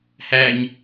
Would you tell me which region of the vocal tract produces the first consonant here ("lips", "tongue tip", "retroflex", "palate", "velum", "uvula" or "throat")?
throat